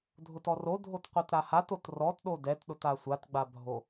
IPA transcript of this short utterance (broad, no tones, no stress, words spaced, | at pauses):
dʱʊtɔrodʱot qʷɛtɾahatot rɔtɗo dɛtɗʊt asʷatɡ͡ba bʱo